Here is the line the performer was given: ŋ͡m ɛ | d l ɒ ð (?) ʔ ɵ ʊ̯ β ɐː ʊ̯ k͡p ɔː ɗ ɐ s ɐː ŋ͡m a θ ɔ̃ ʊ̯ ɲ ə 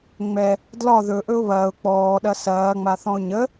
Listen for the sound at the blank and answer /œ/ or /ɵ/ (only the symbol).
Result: ɵ